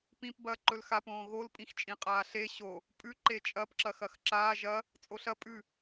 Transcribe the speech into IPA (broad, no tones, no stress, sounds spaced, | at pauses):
p ĩ p b ɐː ǃ ɵ l x a p õː ɣ o l pʼ ĩ x t͡ʃʼ ĩ qʼ aː ɬ e ɕ o | pʼ ʉ ǃ e t͡ʃʼ ɐ p ǁ ɐ x ɐ x ǁ aː ʒ ɐ | t͡sʼ o ɬ ɐ pʼ ʉ